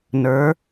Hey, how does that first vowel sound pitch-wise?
rising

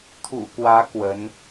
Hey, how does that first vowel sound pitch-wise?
low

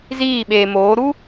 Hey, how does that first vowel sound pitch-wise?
falling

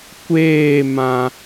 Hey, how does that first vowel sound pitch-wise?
falling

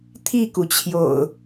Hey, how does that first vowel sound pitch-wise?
falling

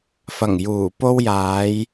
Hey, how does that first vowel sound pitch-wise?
low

